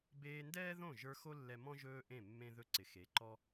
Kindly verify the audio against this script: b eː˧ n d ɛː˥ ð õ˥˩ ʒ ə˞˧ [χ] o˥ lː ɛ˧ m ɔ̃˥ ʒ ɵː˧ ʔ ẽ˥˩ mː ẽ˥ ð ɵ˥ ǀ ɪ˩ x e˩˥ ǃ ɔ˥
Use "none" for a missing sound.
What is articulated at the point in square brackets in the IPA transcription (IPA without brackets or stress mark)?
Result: x